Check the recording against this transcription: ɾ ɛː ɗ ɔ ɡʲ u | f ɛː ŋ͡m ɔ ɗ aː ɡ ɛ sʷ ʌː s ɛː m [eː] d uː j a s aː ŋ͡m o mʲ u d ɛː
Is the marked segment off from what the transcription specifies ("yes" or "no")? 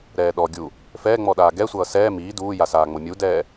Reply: yes